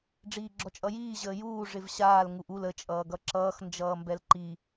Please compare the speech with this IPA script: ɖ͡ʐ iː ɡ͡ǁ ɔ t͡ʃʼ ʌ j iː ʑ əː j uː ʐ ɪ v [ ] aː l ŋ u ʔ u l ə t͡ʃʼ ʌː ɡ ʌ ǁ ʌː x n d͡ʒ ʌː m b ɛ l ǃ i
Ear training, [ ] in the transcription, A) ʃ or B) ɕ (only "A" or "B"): B